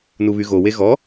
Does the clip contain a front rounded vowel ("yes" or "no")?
yes